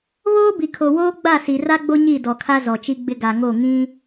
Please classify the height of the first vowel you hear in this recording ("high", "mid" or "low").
mid